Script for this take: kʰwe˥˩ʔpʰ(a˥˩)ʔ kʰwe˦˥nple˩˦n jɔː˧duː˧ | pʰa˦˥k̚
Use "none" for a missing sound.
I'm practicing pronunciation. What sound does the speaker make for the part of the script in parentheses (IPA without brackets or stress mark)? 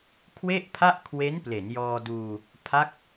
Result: a˥˩